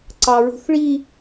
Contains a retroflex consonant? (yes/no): yes